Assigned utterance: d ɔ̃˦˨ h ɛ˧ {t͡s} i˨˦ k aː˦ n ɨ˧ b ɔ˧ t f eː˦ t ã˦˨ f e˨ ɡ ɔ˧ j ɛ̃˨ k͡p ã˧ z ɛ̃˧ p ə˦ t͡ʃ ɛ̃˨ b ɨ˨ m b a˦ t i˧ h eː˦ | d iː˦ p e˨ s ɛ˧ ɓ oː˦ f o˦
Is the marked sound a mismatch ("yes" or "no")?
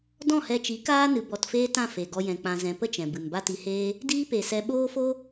yes